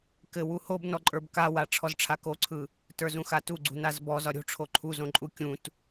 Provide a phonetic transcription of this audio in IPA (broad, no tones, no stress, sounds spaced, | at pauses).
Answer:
k ɘ w u h o b n ɔ ǃʼ ə˞ b k a w a ʈ͡ʂʰ ɔ z ʈ͡ʂʰ a k o ǀʰ ɯ | t ə˞ z ũ x a t u ɡ͡ǀ ṳ n a z b ɔ z ɒ ɾʲ o̤ ʈ͡ʂʰ o ǃʰ u z õ ǃʼ u kʲ ũ t